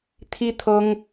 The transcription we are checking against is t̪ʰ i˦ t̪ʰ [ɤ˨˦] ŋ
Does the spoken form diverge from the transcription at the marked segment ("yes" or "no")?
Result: yes